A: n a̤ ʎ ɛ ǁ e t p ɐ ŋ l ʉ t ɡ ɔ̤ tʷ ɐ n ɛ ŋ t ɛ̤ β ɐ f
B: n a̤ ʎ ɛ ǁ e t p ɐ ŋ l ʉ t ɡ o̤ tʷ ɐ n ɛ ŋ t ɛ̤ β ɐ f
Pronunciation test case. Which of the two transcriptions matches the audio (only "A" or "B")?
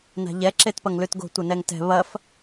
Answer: B